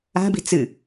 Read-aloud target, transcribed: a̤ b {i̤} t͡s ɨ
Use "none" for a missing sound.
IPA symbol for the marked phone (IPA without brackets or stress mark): i̤